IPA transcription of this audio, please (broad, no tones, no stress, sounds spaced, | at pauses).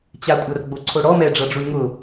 t͡ɕ a kʷʼ a r ɡ͡b o ǀʰ o ɽ ɔ m ɛ ɖ͡ʐ ʌ ɖ͡ʐ u ɳ ŋ ʊ